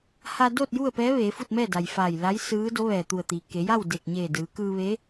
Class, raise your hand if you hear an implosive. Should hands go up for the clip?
no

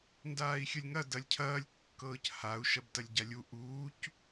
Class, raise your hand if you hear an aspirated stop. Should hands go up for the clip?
yes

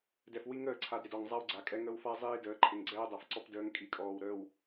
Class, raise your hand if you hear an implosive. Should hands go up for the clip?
no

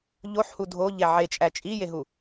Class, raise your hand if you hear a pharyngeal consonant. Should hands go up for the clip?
yes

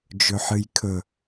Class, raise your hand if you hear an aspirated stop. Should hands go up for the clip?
yes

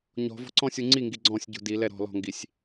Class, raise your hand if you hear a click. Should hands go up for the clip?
yes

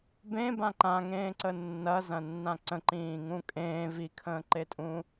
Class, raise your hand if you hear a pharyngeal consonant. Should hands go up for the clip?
no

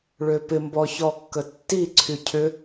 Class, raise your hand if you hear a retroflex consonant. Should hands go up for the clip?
yes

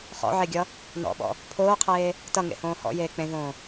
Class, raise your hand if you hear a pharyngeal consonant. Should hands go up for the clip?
yes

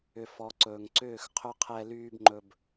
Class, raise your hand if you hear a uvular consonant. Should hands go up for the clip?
yes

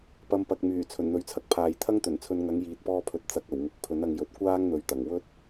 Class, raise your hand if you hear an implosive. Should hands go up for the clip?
no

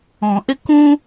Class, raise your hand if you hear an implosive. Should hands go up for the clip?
no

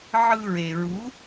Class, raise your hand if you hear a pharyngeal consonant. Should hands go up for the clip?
yes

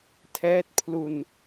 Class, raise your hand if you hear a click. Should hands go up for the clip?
no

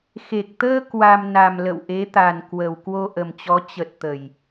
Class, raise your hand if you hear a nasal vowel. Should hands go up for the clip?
no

